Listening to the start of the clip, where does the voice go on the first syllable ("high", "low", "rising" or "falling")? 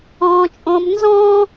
high